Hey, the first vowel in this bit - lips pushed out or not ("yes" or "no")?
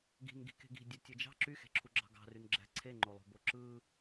no